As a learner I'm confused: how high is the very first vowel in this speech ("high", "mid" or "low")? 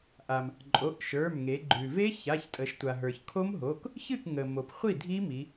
low